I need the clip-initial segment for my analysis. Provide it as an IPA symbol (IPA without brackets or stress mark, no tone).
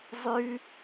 zˤ